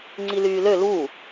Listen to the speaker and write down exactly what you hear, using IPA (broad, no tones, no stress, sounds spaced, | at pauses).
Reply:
ŋ͡ǀ i l yː l ø l uː